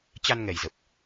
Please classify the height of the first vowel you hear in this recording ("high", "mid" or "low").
low